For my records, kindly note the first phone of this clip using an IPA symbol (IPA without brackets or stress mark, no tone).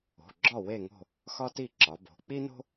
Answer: o̤